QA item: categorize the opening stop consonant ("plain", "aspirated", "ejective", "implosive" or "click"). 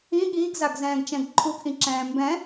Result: implosive